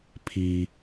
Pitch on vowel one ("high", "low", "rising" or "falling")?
low